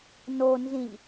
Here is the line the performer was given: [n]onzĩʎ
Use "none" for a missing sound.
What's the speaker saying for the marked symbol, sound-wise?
n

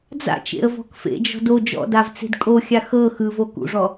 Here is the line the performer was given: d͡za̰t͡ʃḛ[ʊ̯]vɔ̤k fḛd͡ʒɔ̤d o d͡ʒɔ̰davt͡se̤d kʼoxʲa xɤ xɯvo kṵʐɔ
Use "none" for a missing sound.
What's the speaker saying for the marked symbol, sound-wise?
ə̯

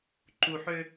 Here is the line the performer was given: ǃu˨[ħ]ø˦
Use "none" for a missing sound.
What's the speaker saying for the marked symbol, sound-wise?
ħ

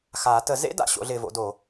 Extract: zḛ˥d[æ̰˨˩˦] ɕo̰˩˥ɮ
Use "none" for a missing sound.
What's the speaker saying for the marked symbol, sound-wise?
a̰˨˩˦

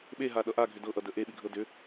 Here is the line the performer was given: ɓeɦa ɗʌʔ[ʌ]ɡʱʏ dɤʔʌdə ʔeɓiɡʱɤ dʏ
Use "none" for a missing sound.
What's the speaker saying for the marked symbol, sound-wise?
a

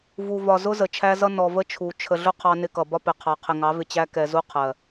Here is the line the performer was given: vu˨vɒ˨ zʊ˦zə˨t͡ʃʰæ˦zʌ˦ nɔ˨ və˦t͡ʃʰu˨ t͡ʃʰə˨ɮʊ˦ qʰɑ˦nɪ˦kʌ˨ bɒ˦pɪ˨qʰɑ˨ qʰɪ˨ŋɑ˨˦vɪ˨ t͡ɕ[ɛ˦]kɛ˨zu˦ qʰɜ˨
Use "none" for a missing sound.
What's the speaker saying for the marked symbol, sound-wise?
æ˦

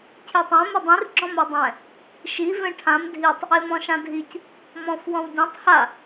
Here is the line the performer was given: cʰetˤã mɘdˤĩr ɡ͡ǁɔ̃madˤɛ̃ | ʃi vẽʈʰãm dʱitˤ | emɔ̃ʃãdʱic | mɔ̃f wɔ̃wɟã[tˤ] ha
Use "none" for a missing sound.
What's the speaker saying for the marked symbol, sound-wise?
tˤ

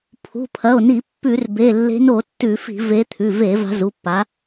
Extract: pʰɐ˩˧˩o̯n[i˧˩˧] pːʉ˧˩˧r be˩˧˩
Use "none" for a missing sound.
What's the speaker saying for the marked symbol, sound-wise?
i˧˩˧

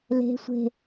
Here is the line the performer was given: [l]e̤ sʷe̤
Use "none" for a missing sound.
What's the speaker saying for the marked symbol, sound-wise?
l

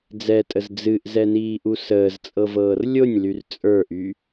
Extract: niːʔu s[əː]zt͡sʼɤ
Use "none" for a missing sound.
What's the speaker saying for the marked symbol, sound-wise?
əː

